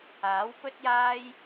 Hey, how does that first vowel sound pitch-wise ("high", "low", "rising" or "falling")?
rising